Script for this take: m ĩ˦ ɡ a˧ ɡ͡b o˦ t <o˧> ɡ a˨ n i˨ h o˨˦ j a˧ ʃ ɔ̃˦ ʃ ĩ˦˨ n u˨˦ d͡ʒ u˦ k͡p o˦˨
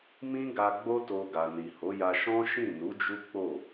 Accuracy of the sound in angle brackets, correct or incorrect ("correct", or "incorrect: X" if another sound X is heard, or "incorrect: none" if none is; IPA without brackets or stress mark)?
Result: correct